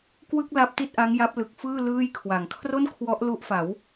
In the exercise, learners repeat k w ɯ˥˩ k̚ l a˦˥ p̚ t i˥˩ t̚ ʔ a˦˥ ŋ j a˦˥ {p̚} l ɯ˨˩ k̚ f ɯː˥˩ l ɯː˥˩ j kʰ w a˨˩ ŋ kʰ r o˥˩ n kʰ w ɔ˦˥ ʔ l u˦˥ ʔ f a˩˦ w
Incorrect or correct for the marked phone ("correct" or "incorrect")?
correct